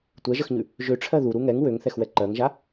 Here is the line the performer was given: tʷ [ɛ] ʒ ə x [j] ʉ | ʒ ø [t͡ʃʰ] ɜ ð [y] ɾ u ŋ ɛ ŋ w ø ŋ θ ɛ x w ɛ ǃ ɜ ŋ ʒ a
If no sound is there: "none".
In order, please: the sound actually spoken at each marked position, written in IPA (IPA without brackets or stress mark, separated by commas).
ɛ, ɲ, ʈ͡ʂʰ, u